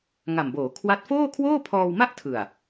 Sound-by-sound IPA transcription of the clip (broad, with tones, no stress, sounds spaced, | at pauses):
ŋ a˨˩ m b oː˩˦ kʰ w a˦˥ t̚ f oː˥˩ kʰ w oː˥˩ pʰ ɔː˧ w m a˥˩ ʔ tʰ ɯ˨˩ a̯